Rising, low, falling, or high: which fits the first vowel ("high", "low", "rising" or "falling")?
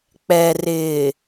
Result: low